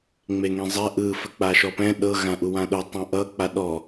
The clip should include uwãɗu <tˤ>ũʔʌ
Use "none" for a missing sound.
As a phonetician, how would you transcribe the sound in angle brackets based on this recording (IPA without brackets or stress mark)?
tˤ